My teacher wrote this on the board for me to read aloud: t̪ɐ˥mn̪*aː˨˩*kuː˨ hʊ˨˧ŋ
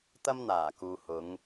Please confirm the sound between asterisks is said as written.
yes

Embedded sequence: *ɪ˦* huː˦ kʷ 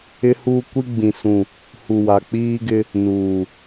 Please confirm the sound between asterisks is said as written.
yes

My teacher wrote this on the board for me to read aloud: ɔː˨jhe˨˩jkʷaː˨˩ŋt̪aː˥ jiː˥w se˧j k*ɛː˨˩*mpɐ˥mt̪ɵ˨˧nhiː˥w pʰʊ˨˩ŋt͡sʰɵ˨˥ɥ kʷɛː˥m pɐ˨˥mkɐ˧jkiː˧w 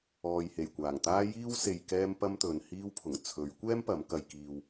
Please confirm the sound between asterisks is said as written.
no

